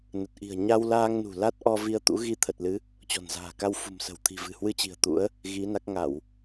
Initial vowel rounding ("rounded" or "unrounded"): unrounded